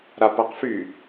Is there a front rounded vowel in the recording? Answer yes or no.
yes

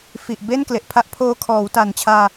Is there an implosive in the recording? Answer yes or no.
no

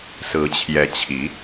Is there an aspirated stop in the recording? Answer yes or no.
yes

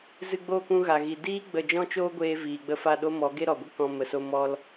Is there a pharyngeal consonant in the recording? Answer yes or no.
no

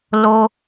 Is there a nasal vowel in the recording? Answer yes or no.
no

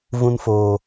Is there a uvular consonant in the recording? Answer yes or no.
no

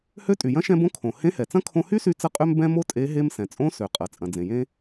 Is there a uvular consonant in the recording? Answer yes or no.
yes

